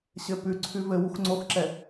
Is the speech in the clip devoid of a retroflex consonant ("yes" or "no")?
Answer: yes